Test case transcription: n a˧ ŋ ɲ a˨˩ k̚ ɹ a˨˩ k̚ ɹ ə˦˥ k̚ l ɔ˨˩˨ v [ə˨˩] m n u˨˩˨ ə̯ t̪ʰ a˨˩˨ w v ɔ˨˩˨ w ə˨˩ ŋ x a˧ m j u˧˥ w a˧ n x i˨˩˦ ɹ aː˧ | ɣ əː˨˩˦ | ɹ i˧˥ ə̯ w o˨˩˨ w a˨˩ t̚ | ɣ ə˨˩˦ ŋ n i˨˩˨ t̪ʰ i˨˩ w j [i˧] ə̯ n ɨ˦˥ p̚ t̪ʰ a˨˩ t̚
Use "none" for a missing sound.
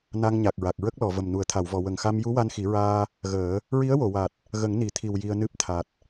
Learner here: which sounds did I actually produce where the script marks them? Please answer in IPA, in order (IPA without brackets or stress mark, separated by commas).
ə˨˩, i˧